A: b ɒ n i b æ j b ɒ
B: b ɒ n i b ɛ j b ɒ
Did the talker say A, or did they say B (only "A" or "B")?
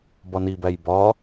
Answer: A